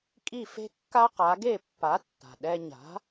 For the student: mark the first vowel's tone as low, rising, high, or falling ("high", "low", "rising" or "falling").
falling